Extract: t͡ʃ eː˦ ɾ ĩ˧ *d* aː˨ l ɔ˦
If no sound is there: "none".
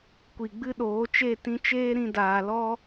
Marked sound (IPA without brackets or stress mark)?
d